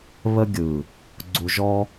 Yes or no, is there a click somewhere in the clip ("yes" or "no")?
yes